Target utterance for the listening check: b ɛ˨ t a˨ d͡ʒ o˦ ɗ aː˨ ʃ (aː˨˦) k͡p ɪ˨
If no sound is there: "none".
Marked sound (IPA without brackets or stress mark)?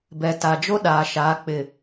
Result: aː˨˦